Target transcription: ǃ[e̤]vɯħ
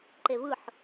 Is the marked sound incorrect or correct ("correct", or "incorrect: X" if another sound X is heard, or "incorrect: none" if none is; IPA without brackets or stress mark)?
incorrect: e